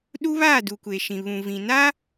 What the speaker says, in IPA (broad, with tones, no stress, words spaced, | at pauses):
ɗu˦βaː˦˨ du˨kʷe˨ ʃĩ˨βũ˨vĩ˨naː˦